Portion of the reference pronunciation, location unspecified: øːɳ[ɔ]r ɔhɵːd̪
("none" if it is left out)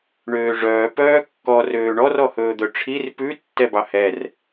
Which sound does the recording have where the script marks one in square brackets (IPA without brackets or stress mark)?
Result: ɔ